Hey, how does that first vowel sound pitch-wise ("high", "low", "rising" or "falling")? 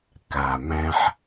low